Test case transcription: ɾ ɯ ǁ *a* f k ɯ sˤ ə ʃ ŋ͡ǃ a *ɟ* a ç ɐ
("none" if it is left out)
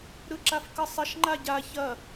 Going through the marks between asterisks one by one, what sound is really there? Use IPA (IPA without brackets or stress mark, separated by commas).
a, ɟ